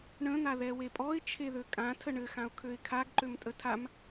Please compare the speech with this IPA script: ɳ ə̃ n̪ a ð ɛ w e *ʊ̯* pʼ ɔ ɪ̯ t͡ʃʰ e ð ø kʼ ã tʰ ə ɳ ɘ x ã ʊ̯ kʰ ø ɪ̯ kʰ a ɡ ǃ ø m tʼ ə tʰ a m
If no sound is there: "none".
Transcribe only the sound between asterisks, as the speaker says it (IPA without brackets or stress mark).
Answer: none